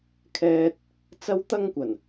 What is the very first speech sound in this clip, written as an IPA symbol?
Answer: kʰ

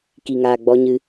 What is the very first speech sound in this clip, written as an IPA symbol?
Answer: k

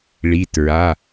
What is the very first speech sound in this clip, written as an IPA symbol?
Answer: ɭ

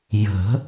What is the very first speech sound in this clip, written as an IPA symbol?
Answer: j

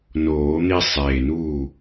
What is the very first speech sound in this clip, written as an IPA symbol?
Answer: n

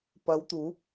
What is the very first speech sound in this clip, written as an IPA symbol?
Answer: p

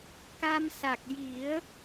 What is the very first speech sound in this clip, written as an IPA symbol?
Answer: k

